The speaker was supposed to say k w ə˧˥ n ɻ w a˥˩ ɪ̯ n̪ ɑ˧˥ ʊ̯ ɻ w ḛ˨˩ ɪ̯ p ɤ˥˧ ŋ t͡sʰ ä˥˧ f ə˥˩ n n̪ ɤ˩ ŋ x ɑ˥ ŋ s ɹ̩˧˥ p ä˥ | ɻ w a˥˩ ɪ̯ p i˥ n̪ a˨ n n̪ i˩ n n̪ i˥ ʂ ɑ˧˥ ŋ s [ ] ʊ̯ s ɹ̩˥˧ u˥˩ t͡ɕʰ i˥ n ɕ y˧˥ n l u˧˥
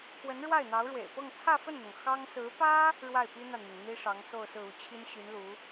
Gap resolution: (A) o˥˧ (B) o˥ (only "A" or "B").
A